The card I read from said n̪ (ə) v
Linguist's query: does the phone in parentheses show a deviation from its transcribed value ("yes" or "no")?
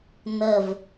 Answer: no